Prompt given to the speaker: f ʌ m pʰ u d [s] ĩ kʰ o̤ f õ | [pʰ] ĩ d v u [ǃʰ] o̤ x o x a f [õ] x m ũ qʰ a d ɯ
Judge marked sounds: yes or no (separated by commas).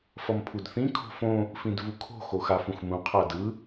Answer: no, no, no, no